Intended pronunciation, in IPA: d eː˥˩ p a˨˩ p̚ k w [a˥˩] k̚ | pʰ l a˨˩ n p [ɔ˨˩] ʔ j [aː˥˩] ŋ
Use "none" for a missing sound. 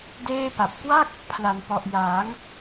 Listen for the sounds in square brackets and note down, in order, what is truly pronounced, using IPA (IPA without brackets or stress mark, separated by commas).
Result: a˥˩, ɔ˨˩, aː˩˦